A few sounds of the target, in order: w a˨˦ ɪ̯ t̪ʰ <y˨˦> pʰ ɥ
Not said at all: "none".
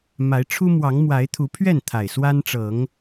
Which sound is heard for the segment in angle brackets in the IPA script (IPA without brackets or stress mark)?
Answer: u˨˦